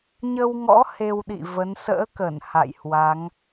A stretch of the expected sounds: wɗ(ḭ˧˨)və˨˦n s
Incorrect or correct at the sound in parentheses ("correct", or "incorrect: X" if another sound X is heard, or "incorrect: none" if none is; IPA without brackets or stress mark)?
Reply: correct